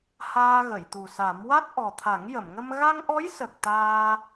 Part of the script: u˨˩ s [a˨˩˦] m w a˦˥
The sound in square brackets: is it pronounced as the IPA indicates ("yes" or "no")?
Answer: yes